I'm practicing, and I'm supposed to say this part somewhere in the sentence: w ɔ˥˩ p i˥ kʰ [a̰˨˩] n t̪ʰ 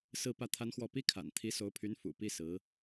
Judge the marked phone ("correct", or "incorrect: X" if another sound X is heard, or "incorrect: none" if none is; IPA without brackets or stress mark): correct